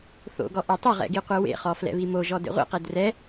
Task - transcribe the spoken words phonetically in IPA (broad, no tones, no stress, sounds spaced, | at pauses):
θ o̰ ɡ ɔ ʔ ɛ tˤ ɵ ʁ ɛ̰ ɡ i qʷ ɛ w ḛ χ ɔ f l ɛ̰ β i m o ʒ ɔ d ḛ ʁʷ ḛ q e d r ɛ